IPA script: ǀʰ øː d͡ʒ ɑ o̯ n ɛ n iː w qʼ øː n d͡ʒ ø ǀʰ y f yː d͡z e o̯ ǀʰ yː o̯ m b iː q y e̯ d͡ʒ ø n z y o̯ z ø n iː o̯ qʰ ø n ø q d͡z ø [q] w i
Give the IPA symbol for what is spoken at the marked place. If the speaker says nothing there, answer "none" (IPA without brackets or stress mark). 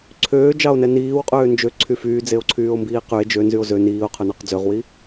ʁ